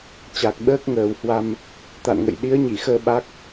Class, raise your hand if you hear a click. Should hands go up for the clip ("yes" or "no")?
no